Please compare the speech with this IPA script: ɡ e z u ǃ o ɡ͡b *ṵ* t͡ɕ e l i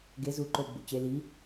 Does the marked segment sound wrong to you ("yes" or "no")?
no